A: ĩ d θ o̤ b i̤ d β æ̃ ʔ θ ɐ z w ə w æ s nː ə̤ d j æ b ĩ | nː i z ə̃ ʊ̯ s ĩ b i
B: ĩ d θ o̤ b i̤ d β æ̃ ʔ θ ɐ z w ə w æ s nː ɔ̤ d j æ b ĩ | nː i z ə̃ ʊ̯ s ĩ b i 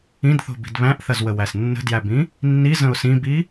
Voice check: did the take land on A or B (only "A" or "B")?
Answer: A